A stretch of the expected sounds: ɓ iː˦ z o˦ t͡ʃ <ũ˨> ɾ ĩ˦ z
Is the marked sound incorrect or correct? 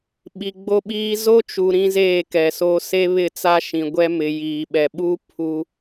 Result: incorrect